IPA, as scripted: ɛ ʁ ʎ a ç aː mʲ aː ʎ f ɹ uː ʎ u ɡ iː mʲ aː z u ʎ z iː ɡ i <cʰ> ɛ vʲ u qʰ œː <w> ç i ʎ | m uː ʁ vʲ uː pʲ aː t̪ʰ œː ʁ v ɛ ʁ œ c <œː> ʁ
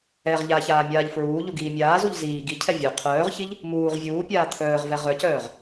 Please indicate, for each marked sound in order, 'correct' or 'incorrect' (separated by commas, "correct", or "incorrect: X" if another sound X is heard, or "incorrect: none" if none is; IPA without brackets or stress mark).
correct, incorrect: ʁ, correct